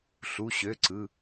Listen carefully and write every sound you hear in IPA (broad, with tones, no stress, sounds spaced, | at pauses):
ɬ u˩˧˩ ɕ ø˩˧˩ ǀ ɯ˩˧˩